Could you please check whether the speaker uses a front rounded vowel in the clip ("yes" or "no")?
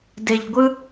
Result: no